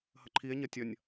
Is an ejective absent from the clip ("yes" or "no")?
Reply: yes